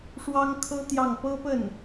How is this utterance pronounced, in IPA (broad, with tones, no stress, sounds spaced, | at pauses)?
ʂ w ɑ˥ ŋ kʰ ɤ˥ t̪ j ɑ˥˩ ŋ p ɤ˥ p ə˥˩ n